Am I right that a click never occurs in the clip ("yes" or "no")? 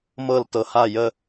yes